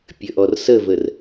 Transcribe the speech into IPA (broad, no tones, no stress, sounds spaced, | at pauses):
pʲ ə ʔ ɔ r s ə v ə r